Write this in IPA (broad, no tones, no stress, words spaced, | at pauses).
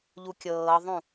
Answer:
ʎukʲɤːðˤũ